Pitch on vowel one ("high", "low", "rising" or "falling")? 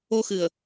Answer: high